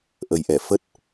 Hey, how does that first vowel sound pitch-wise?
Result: low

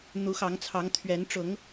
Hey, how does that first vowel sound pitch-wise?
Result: rising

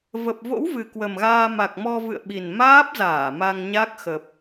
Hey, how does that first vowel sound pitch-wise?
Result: low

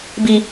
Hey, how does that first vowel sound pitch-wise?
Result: low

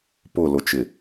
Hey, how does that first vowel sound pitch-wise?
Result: falling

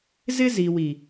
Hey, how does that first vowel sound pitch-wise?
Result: high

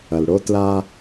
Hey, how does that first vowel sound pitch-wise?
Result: low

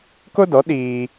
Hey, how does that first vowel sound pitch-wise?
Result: high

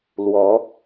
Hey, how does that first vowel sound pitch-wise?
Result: rising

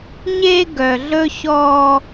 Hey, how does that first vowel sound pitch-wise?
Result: high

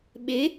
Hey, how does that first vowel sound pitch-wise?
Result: rising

